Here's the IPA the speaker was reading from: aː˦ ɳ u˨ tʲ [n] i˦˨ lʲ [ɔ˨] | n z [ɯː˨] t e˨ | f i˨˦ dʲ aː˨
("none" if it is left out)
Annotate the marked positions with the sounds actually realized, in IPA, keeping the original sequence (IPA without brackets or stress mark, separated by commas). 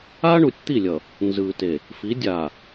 t̪, ʌ˨, ɯː˨